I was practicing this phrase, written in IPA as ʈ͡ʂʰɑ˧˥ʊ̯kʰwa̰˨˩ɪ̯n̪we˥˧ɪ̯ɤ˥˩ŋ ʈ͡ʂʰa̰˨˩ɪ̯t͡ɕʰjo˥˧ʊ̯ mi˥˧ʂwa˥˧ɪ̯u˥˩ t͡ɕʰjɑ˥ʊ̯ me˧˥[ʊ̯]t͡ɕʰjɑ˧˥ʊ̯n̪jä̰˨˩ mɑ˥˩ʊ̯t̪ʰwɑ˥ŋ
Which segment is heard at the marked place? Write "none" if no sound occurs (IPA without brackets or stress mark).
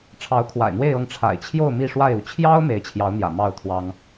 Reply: ɪ̯